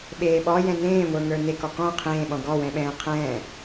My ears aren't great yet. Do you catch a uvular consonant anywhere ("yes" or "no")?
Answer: yes